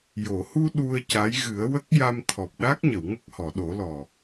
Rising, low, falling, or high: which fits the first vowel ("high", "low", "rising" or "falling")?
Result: low